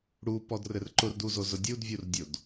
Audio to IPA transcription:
ɽ u p ɔ d r ɘ r ǃ ʊ r d u z o z ʊ dʲ u d vʲ u r dʲ o d

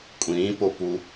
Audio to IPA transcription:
kʷʼ ĩː p o p u

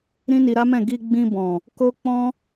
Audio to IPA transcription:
ɾ ĩ˦ n i˧ ɾ a˦ m ɛ̃˦˨ ɡ i˧ ɡ͡b ĩ˧ b ɔ̃˨ | k o˦ k͡p ɔ̃˦

